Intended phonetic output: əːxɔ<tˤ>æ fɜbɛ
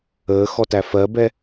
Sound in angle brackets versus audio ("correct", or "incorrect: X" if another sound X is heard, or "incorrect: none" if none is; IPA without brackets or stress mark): incorrect: t